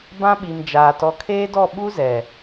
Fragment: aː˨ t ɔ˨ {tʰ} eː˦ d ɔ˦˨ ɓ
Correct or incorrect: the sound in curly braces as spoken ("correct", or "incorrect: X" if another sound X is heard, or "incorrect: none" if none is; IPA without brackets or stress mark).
incorrect: kʰ